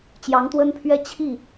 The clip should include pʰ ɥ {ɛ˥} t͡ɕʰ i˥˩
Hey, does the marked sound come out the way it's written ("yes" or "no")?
yes